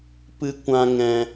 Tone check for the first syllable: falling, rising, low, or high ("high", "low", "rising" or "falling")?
high